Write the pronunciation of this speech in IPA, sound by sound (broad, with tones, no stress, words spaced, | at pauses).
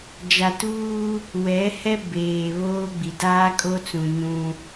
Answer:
d͡ʒa˨tuː˦ | wɛ˨˦hɛ˦ beː˨βoː˦ɡ͡bi˨ daː˦kʼo˦t͡sũ˨ ɲũ˦